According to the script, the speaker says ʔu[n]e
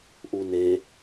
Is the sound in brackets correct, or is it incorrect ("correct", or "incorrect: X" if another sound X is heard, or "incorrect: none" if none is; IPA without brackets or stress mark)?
correct